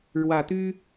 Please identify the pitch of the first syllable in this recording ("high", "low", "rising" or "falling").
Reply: low